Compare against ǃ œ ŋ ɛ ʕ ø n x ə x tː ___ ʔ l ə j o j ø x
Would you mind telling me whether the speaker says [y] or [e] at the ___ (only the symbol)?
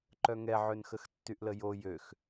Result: y